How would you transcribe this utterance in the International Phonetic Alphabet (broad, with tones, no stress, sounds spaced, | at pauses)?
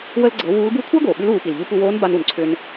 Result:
w ə˧ l ɡ͡ǀ ɤ˩˧ w uː˧˥ l b u˥ kʷʰ ʌː˥ ɡ oː˩ ɓ ʉ˧˥ l uː˩˧ p i˩ l ʎ u˧ p u˧ w oː˧˥ n b a˧ n u˩ n ǀʰ ʏ˧ n